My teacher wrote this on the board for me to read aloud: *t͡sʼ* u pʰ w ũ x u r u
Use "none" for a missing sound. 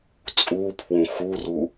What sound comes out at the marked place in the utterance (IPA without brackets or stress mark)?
t͡sʼ